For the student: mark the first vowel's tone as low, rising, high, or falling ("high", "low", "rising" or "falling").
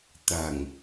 low